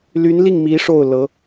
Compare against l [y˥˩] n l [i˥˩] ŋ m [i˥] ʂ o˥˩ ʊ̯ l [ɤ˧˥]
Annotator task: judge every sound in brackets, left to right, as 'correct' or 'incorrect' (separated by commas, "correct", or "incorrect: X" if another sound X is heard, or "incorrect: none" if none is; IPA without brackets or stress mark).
incorrect: y˧˥, correct, incorrect: i˧˥, correct